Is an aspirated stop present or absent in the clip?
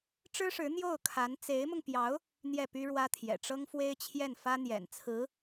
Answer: present